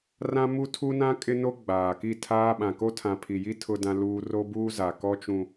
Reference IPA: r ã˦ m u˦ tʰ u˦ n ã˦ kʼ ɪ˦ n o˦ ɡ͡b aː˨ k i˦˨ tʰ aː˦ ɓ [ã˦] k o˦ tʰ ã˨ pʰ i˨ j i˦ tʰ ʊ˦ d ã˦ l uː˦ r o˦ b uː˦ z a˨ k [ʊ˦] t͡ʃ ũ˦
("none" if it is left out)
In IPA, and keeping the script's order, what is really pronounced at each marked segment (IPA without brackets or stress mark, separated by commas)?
ã˨, ɔ˦